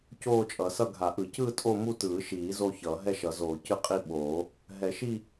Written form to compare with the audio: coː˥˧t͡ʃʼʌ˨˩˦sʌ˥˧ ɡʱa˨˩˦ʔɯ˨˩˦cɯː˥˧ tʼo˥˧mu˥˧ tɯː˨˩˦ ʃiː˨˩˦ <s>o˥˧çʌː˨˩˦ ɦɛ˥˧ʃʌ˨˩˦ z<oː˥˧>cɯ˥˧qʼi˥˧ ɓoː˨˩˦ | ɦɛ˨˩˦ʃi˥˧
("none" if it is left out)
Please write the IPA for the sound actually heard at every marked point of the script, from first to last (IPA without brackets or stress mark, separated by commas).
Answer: z, oː˨˩˦